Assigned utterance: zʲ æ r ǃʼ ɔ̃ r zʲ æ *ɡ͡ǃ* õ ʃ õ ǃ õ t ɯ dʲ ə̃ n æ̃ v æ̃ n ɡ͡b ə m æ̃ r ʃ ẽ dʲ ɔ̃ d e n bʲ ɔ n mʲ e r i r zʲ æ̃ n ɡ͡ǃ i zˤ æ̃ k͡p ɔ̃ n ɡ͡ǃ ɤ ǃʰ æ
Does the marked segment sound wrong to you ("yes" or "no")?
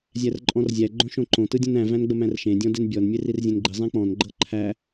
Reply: no